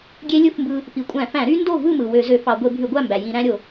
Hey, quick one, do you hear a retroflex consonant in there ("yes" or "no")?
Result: no